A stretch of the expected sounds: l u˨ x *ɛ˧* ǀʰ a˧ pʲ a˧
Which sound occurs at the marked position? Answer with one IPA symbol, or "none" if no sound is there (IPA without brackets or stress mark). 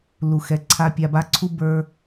ɛ˨